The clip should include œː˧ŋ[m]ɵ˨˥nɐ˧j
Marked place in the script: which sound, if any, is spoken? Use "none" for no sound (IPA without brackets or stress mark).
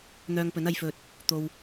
p